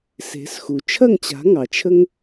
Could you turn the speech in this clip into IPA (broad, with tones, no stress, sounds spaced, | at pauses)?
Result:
s e̤˩˥ s x u˩ t͡ʃʰ ɐ˥˩ ŋ t͡ɕ a̤˩˥ ŋ ɑ˩ t͡ʃʰ ə˥ ŋ